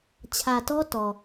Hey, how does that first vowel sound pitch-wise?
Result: low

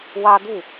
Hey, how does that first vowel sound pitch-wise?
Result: high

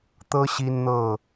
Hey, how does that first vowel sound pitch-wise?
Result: high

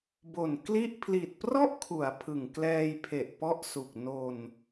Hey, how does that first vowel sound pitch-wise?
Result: low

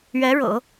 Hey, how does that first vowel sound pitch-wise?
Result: rising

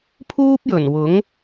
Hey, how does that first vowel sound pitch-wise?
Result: high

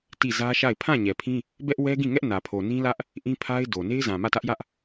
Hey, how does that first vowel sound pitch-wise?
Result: falling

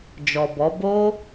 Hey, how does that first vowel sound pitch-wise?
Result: low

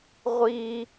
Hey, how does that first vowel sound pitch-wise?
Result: high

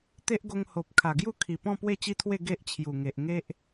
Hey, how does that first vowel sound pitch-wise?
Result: high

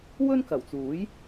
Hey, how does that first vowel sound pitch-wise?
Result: high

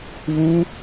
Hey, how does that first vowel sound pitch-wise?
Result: high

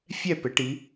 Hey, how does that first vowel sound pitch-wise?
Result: falling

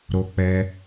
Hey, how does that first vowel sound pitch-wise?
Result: high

